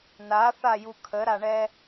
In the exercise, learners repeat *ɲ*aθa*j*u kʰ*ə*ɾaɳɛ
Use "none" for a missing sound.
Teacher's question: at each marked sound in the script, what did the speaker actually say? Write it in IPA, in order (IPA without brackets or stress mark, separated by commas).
n, j, ə